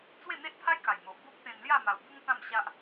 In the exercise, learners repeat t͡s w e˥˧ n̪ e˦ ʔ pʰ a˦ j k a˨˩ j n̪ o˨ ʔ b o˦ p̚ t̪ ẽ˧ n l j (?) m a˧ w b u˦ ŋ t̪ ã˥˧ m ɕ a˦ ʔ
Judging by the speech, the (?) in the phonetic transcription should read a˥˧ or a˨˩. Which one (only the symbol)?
a˥˧